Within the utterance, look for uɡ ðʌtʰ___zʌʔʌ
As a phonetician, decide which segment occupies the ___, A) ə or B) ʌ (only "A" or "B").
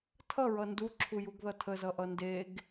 A